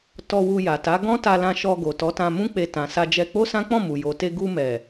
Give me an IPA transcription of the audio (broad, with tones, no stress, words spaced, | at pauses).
tɔ˧wu˧ja˨ta˨˦ ɡɔ̃˦ta˧lã˧ʃɔ˧ ɡo˨tɔ˨˦tã˧ mũ˦k͡pe˧tã˨sa˧ d͡ʒɛ˧k͡po˦sã˦ k͡pɔ̃˦˨mu˨jo˨te˧ ɡu˧mɛ˨